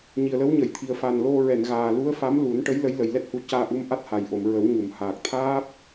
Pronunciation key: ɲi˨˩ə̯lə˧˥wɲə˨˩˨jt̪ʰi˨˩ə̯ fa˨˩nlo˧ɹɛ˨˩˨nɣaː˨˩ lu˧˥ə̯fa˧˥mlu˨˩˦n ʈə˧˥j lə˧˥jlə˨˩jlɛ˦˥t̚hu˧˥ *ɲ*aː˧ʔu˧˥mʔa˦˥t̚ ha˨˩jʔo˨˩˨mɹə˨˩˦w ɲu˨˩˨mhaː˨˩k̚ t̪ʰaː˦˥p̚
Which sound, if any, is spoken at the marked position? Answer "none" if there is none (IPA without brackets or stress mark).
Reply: c